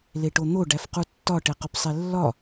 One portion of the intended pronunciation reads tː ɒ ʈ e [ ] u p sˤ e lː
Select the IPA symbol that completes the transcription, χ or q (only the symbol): q